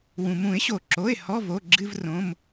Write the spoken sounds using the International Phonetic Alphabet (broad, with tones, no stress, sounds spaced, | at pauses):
w ũ˩ m ũ˨˩˦ ɪ̯ ɕ o˩ ǁ o˩˧˩ ɪ̯ h ɔ˧˥˧ v o˩˧˩ ɡ͡ǁ ɨ˧˥˧ v r õ˩˧˩ m